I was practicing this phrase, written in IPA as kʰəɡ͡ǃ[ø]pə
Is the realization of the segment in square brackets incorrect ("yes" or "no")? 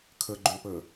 no